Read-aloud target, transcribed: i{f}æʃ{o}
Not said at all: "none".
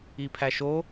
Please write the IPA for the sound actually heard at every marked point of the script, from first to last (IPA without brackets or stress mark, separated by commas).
pʰ, o